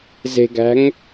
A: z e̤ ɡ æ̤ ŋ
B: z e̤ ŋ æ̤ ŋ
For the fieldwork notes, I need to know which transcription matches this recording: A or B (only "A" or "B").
A